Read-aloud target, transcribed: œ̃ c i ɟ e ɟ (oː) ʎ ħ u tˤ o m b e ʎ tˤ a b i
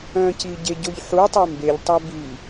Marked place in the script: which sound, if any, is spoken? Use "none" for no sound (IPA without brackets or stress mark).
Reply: o